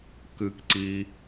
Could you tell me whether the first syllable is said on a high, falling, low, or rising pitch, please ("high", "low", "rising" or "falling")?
high